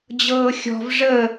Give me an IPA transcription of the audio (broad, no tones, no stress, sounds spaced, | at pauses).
d͡ʑ ɤː xʲ ɔ̤ v ʐ ə